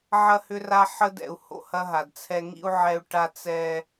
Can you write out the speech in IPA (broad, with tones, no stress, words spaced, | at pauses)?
ʕɐ˦hʏ˦ra˦ ħə˦dɛ̰˨u̯ho̰˦ hɐ˦ɦa˨dt͡sʰɛ˦ ŋḭ˦u̯ ʕɛ˦u̯ ʈa˦ t͡sɛ˦